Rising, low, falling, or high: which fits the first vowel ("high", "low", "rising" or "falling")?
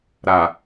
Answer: low